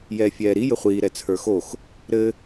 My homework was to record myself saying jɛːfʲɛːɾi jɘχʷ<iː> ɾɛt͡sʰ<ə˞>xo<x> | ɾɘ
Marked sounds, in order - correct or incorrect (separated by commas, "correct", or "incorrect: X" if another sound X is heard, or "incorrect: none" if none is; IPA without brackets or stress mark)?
correct, correct, correct